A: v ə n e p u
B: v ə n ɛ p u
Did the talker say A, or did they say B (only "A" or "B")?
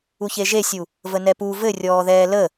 B